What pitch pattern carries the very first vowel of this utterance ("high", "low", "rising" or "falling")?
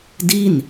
falling